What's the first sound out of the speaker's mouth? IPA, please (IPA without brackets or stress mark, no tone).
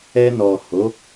ɛ